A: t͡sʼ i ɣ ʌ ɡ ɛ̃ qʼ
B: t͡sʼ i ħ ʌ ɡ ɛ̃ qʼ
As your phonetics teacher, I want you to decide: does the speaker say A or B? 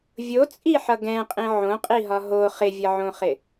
B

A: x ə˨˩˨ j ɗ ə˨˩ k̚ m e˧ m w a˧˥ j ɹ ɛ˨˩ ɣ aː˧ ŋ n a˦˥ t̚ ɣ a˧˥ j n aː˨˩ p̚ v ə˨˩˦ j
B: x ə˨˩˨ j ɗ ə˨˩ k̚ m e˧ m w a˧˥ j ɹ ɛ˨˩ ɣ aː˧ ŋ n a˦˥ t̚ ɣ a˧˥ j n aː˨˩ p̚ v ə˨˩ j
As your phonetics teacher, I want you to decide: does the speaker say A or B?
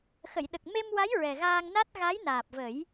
A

